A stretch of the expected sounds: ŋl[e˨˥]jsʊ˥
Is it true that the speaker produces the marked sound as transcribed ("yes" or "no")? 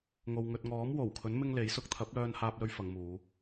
yes